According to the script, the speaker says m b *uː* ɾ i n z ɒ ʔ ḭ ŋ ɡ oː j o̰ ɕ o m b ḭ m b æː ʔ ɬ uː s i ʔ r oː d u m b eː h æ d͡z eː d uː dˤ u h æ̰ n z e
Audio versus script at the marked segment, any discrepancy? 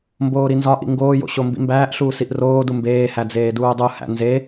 yes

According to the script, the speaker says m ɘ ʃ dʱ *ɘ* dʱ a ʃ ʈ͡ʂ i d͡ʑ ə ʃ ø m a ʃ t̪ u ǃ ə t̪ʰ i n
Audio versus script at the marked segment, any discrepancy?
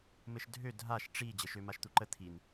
yes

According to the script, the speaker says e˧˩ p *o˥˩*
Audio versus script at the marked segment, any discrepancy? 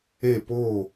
yes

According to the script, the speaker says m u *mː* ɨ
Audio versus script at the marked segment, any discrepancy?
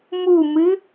yes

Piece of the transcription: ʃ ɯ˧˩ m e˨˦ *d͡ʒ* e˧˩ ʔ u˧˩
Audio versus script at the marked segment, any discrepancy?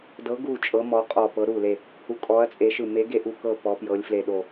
yes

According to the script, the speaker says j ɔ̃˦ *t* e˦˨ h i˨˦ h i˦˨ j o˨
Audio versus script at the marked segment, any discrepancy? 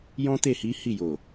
no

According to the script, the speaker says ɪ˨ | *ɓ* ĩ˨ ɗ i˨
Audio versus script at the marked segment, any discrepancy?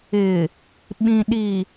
no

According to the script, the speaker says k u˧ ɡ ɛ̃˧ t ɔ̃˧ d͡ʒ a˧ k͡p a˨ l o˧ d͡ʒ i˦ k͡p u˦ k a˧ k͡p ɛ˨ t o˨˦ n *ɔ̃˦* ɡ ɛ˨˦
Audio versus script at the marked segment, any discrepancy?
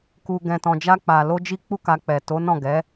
yes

